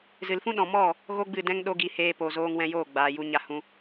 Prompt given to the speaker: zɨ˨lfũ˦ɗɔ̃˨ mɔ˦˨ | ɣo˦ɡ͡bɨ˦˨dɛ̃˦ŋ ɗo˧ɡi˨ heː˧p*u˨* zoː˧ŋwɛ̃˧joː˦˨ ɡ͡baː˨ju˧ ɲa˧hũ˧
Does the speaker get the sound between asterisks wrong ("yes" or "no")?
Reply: yes